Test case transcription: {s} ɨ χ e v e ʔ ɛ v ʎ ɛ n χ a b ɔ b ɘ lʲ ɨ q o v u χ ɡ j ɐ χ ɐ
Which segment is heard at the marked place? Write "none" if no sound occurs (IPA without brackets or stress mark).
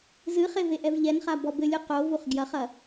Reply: z